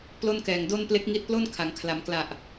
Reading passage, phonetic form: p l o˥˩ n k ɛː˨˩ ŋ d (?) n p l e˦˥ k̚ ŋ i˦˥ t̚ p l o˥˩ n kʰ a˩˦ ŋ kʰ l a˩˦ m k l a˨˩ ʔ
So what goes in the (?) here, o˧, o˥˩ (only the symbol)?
o˥˩